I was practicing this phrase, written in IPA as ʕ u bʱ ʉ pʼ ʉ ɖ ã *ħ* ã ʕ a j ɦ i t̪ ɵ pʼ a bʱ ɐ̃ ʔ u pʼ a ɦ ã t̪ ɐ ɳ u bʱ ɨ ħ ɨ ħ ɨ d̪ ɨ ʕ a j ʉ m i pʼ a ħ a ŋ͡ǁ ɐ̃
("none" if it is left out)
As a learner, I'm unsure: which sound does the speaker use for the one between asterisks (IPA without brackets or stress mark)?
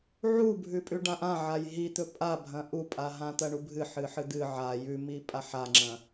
ʔ